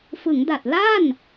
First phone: f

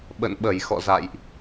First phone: ɓ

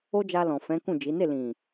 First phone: o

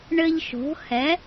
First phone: ɳ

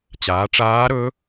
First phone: t͡ɕ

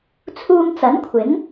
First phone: t͡sʰ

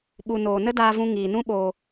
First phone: ɓ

